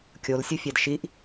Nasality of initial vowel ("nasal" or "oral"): oral